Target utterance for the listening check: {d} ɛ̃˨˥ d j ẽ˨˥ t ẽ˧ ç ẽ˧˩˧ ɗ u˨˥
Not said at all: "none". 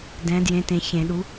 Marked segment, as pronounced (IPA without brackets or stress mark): d